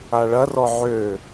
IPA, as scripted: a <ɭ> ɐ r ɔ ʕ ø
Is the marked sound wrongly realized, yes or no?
no